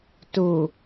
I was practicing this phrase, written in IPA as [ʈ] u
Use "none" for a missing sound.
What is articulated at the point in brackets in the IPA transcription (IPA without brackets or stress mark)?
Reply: t